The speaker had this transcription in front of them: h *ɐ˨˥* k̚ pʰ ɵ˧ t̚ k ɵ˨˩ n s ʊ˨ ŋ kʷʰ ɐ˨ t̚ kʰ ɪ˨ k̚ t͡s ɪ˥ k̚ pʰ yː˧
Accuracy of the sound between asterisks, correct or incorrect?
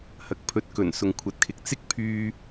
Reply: incorrect